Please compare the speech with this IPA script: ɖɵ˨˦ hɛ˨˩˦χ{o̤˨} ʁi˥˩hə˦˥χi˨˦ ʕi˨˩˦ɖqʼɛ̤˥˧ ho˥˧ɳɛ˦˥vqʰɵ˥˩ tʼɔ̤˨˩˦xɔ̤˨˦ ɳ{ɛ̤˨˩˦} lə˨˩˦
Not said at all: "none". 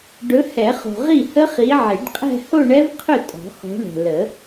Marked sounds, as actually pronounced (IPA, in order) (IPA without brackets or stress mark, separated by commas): o̤˨, ɛ̤˨